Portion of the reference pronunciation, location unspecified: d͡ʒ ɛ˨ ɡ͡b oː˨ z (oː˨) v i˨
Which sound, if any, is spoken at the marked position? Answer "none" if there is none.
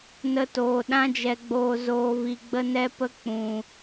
oː˨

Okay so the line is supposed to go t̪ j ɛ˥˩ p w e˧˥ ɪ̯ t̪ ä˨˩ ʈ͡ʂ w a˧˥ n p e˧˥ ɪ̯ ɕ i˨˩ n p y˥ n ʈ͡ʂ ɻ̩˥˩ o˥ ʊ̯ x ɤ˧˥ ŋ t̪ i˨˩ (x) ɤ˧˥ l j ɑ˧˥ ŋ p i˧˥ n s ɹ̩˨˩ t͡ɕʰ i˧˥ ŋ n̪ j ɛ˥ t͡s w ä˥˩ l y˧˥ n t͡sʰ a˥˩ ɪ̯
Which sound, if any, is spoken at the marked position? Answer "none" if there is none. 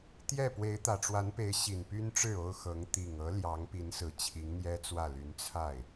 ŋ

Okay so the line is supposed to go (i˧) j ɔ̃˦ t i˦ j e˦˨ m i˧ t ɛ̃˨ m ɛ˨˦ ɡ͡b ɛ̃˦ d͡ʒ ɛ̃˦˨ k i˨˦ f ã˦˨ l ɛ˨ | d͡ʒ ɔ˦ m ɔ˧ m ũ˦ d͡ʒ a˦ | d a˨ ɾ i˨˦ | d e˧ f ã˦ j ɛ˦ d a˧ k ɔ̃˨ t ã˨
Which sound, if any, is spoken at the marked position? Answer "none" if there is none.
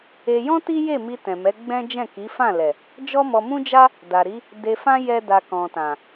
e˧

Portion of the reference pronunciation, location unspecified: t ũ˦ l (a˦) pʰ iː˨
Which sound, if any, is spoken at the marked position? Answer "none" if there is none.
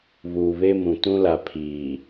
a˨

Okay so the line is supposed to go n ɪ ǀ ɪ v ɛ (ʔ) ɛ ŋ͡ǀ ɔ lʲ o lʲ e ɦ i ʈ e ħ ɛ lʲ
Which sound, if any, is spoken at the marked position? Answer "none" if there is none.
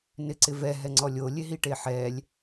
ɦ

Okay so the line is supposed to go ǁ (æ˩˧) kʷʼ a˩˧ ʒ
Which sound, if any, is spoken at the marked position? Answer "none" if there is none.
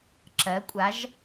ɜ˩˧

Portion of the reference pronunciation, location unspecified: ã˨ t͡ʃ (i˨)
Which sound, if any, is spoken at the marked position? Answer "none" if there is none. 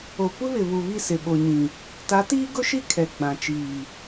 iː˨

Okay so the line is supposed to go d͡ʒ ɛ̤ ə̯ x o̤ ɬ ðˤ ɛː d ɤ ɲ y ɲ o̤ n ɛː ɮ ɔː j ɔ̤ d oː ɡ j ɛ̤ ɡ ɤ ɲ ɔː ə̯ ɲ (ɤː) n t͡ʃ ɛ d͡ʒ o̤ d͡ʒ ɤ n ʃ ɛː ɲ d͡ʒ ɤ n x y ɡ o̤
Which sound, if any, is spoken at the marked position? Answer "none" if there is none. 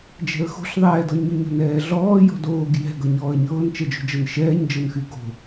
ɤː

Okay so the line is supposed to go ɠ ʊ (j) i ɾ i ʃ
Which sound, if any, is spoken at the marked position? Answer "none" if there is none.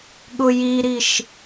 j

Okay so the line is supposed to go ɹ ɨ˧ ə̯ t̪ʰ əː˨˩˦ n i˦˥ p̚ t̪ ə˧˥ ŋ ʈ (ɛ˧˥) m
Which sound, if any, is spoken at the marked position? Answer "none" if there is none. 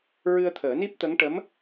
ə˧˥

